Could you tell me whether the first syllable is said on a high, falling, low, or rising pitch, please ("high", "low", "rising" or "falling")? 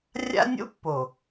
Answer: high